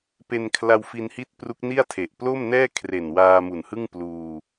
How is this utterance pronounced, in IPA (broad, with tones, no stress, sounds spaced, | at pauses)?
p e˧ n kʰ l a˧ w f i˧ n h i˦˥ t̚ p r u˦˥ k̚ n i˥˩ a̯ tʰ e˨˩ ʔ p l o˥˩ m n ɛː˥˩ kʰ r e˨˩ n w aː˧ m u˨˩ n h ɯ˥˩ ŋ p l uː˧